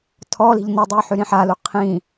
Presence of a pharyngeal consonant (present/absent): present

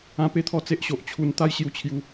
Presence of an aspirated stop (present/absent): present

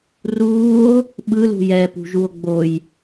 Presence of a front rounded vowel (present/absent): absent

